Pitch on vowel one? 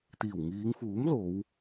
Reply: low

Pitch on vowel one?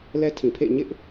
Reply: high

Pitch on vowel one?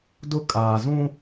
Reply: high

